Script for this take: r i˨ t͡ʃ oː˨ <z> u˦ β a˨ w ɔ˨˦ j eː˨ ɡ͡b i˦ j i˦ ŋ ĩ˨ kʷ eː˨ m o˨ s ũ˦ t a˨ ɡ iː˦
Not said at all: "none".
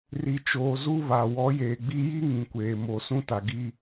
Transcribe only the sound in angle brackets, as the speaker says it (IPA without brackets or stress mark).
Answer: z